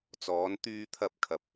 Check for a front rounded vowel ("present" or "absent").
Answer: present